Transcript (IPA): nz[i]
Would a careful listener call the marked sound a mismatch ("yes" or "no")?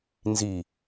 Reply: no